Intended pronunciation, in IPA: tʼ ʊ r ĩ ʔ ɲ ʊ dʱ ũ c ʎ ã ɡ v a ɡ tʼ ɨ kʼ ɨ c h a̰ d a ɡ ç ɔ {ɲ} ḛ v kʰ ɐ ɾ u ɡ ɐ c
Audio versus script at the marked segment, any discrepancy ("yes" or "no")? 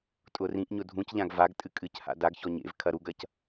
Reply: no